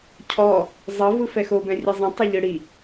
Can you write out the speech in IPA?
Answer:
cʰ ɔ | zˤ ɤ v ɯ f ɛ x o b ɛ̃ rʲ ɛ zˤ ɛ̃ tˤ o ʎ ɯ ɽ i

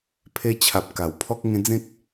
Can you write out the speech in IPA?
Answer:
pʰ e˧ t͡ɕʰ a˨ p̚ k a˨˩ w pʰ ɔ˦ k̚ ŋ ẽ˦ d͡z ẽ˦ k̚

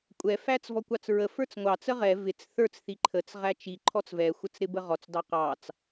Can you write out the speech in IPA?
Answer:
kʷʼ ɛ f æ t͡s v ɔ kʷ ɑ t͡s ɹ ə f ə˞ t͡s ŋʷ ɑ t͡s ə ʁ ɛ v ɪ t͡s θ ə˞ t͡s θ i ǃʰ ə t͡s ʁ æ t͡ʃ i ǃʰ ɔ t͡s v ɛ xʷ ə t͡s ɾ ɪ b ə ʁ ɔ t͡s d ɑ q ɑ t͡s

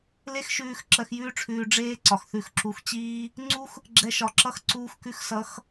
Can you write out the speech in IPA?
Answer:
l e˦ x ʃ ʉː˧ x ǁ ɜ˧ x j ʉː˦ ʈ͡ʂʰ ʉː˧ ɖ͡ʐ eː˦ ǀ ɒ˨ x θ ʉ˧ x ǁ u˧ x t͡ɕ iː˦ | ŋ͡ǀ u˦ x | ɡ͡ǁ ɛ˧ ʃ ɒ˨ ǁ ʌ˦ x ǀ uː˧ x k ʉ˧ x s ʌ˨˦ x

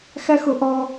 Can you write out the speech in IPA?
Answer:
x æ˦ x ʊ˨ ʔ ɔ˦

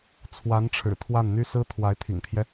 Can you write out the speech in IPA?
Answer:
t͡sʰ w a˧˥ n ʈ͡ʂʰ ɻ̩˨˩ t̪ʰ w a˥˩ n n̪ y˥ s ɹ̩˥ t̪ʰ w a˧˥ ɪ̯ t̪ʰ ḭ˨˩ ŋ t̪ʰ j ɛ˦

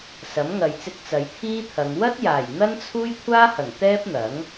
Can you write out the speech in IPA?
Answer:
s ɐ˨˥ m ŋ ɐ˨ j t͡s ɪ˧ k̚ t͡s ɐ˨˧ j t̪ʰ iː˥ t̪ʰ ɐ˨˧ ŋ w ɐ˥ t̚ j aː˨˩ j n̪ ɐ˥ n t͡sʰ uː˥ j kʷʰ aː˥ h ɐ˨˩ ŋ t̪ ɛː˥ p̚ n̪ ɐ˨˥ ŋ

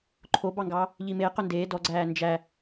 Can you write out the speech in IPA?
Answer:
ǃʰ o b ɑ ŋ ɡ ɑ | ʎ i m e q ɵ n d eː d ɔ ɡ͡ǀ æː n d͡ʒ æ

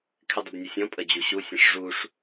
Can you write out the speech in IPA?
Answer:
kʰ ɪ dˤ ʊ b nʲ ə sʲ ɔ̃ pʼ ə d͡ʑ u ɕ u sʲ ə̃ ʂ ʐ u ʂ

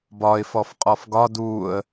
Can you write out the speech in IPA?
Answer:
b ɒ ɪ̯ f ɔ f qʼ ɔ f ɡ ɒ d uː ə̯

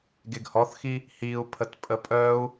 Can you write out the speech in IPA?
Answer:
ɡ e ɡ h ɔ θ x i | h i u̯ pʰ ə t pʼ ə pʼ œ u̯

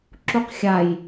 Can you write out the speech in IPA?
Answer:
ǁ u q xʲ a j

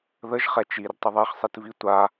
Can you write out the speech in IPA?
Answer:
ð ə ʒ χ ɛ t͡ʃ i r tˤ ə ðˤ ɛ χ sˤ i t v i tʷ a

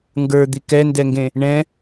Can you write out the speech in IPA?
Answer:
ŋ ɡ ə˞ d̪ i k ɛ n d ɛ ŋ ɡ ẽ | ɳ ɛ̃

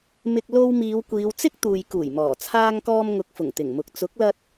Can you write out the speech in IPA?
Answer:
m ɪ˨ k̚ l o˧ w m iː˨˧ w kʷ iː˨˧ w t͡s ɪ˥ k̚ t̪ uː˨ j k uː˨˩ j m ɔː˨˩ t͡sʰ aː˧ ŋ k ɔː˧ m ŋ ʊ˨ k̚ f ʊ˨˩ ŋ t̪ ɪ˨˩ ŋ m ʊ˨ k̚ t͡s ʊ˨˥ k̚ l ɐ˧ t̚

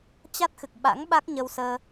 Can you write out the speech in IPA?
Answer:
t͡ɕ a˦˥ t̚ x ɨ˨˩ k̚ ɓ a̰˧˥ ŋ ɓ a˦˥ k̚ ɲ ə˧ w s əː˧

